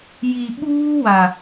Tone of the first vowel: low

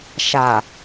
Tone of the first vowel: low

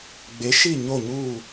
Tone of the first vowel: rising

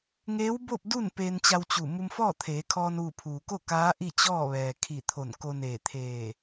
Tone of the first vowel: rising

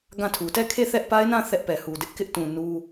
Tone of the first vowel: falling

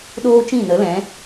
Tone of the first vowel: high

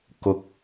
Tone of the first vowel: low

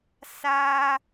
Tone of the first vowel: high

